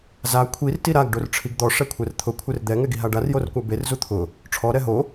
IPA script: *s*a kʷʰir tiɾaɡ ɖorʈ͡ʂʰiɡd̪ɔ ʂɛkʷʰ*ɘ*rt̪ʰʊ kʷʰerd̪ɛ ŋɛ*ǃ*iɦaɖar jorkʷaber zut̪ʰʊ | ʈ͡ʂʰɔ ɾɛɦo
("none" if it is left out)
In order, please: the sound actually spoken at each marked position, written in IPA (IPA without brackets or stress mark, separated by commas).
z, ɛ, ɡ